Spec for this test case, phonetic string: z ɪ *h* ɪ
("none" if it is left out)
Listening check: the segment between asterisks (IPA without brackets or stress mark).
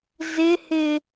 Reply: h